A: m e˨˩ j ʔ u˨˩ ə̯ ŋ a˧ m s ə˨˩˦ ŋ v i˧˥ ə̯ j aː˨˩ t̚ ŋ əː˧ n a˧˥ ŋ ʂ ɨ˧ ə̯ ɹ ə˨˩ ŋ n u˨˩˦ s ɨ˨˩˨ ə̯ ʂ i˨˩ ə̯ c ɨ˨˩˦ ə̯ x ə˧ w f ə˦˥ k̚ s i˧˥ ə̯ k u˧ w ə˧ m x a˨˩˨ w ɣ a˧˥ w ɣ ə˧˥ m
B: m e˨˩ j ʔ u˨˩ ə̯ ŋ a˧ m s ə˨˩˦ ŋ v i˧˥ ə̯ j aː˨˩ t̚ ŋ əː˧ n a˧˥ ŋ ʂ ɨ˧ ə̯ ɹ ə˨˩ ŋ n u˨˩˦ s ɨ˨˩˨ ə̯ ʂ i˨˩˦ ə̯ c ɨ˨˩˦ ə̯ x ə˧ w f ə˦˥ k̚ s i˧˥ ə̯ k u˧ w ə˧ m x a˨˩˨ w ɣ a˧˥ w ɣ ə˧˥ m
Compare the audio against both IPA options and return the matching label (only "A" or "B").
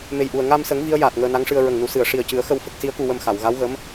A